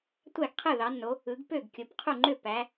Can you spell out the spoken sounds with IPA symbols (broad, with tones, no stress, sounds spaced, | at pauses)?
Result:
tʷ æ˥˨ ɡ qʰ ɯ˥˨ ð ɑ˨˦ nː o˨˦ | ɯ˨˦ ɡ p ø˥˨ ɡ kʲ o˨˦ p qʰ u˥˨ ŋ͡ǃ ø˥˨ p æ˨˦